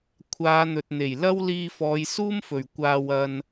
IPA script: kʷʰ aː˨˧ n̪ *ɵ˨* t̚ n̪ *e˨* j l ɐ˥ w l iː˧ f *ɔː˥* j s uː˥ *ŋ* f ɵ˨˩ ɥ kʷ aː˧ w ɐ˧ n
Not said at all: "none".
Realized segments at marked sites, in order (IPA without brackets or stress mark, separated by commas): ɵ˨, e˨˩, ɔː˨˧, m